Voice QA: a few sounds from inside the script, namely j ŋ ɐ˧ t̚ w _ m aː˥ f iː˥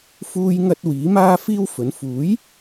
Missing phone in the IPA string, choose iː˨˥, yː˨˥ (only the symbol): iː˨˥